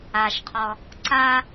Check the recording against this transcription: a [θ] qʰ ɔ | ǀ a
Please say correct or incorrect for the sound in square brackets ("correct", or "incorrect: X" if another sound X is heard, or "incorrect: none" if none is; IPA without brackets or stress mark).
incorrect: ʃ